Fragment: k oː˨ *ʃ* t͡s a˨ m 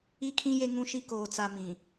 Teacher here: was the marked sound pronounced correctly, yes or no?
no